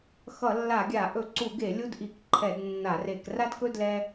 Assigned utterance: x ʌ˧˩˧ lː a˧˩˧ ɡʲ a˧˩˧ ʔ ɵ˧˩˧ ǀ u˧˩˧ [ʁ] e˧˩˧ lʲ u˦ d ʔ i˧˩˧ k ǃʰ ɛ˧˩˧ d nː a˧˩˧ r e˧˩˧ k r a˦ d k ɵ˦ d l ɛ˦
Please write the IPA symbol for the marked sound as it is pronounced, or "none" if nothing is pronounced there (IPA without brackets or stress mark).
ɡ